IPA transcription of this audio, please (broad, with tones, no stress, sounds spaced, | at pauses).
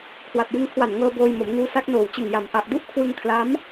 kʰ w a˨˩ t̚ j ɯ˧ ŋ kʰ w a˨˩ n ŋ ɤː˧ b oː˧ j m o˩˦ m ŋ uː˦˥ s a˦˥ k̚ n oː˨˩ w t͡ɕ ɯ˨˩ ŋ j a˨˩ m ʔ a˨˩ ʔ d u˥˩ ʔ kʰ w ɯ˧ ŋ kʰ l a˦˥ m